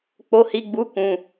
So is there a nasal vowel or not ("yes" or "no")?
yes